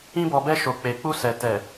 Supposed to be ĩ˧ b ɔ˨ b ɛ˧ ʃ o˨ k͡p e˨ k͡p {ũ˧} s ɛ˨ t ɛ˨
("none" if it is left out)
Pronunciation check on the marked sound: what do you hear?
u˧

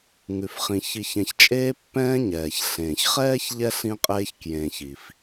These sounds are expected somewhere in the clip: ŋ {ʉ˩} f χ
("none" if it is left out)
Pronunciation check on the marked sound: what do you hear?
ʉ˩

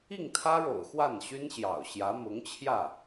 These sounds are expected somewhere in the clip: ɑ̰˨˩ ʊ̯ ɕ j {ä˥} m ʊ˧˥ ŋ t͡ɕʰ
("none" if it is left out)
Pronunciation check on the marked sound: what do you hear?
ä˧˥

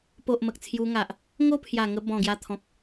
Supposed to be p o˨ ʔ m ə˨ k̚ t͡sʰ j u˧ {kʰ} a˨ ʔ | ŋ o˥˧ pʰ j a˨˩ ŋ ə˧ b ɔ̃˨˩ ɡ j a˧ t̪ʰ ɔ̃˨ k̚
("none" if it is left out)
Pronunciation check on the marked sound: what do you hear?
ŋ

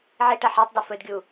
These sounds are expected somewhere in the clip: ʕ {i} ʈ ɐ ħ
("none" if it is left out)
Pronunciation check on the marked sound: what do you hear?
i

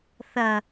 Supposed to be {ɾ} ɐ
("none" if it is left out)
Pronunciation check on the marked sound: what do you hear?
θ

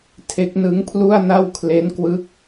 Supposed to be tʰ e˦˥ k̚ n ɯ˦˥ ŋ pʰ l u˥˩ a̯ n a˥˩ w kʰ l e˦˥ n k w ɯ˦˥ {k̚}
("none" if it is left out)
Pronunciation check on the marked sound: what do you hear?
k̚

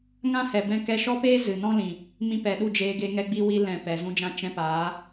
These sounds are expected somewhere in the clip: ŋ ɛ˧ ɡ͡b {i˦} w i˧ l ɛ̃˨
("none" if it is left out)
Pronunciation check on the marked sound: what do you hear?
i˧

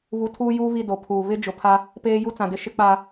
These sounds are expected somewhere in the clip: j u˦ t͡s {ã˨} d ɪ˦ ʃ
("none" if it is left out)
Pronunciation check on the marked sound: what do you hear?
ã˨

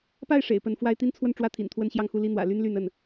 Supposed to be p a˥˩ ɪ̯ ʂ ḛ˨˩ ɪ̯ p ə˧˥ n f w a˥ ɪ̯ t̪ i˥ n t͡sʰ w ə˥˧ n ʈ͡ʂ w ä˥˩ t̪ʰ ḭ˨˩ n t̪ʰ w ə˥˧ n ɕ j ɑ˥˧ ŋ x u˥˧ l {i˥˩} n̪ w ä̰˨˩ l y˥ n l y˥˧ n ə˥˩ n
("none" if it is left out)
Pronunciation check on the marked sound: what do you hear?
i˥˩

